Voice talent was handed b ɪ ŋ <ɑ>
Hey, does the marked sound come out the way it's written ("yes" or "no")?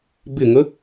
no